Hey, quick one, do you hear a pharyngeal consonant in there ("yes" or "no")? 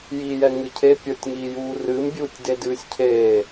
no